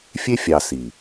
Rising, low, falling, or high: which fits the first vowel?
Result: high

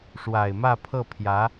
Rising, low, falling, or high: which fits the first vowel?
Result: low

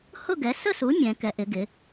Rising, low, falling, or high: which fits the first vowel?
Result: falling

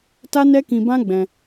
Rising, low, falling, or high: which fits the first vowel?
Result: high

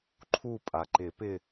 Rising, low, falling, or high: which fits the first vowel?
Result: falling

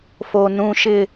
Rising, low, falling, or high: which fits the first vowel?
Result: low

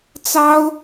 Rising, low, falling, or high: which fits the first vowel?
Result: high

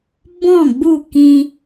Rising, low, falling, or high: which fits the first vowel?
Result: falling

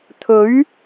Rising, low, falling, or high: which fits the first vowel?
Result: rising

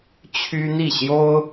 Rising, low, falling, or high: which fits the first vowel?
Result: high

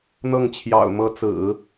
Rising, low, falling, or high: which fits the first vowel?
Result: falling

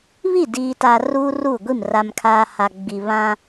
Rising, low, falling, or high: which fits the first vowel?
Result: falling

